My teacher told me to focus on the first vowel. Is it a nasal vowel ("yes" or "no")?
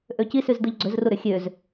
no